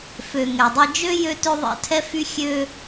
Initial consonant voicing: voiceless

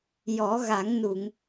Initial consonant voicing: voiced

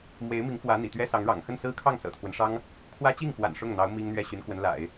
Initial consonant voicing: voiced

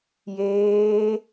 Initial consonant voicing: voiced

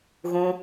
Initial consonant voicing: voiced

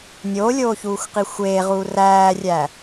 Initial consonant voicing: voiced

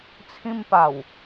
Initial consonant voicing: voiceless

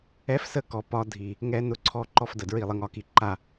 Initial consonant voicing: voiceless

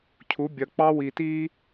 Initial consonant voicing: voiceless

